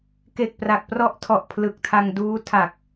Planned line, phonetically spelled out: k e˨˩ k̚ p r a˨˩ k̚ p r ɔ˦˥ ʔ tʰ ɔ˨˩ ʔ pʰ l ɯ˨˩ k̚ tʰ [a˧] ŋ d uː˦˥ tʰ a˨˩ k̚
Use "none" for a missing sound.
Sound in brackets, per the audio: a˧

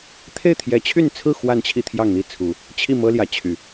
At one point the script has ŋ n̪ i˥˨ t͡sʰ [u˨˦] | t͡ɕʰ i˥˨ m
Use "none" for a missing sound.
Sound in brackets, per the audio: u˨˦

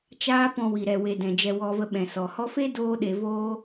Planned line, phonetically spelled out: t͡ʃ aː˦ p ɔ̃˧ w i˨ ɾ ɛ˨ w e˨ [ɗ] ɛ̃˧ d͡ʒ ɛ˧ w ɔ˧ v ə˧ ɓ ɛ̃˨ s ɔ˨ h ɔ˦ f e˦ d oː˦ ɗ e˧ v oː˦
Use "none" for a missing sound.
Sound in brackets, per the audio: d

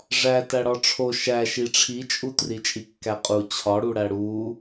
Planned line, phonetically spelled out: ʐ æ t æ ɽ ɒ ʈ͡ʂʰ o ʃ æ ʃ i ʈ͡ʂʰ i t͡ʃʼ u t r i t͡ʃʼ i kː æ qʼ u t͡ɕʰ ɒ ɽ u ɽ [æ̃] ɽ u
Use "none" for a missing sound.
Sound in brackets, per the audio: æ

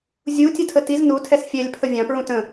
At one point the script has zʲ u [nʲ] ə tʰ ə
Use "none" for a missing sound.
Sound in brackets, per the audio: tʲ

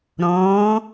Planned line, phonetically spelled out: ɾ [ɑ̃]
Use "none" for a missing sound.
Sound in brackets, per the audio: ɔ̃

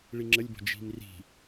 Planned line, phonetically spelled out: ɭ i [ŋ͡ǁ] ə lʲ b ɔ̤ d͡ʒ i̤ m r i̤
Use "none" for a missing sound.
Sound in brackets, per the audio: ŋ͡ǁ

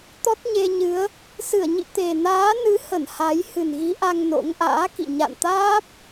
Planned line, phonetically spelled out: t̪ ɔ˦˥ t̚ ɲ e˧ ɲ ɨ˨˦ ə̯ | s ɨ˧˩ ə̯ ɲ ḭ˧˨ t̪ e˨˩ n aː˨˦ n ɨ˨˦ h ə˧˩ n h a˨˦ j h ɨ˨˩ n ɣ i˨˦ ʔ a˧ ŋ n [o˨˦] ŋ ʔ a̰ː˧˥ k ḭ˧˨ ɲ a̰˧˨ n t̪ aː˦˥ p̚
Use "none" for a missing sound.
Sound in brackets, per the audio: o̰˧˥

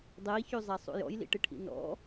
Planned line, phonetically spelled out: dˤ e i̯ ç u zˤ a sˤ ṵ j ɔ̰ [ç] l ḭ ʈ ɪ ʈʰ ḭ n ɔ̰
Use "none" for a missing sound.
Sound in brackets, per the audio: j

